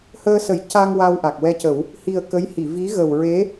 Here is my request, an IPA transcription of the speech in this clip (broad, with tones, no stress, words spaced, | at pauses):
həː˧sə˨˩˦jca˧ŋ wa˧wʔa˨˩k̚wɛ˧cə˨˩˦w | hi˨˩ə̯ kə˧˥jhi˨˩˨ vi˧˥ɣə˨˩w ɹe˧˥